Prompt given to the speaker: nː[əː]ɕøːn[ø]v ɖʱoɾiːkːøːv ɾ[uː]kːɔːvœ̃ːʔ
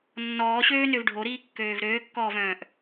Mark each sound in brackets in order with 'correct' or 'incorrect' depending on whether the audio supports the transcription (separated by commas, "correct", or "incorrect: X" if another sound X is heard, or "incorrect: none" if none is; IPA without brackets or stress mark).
incorrect: ɔː, correct, incorrect: øː